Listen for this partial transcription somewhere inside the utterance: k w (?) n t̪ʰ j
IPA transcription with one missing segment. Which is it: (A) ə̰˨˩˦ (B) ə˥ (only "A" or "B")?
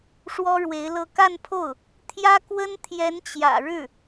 B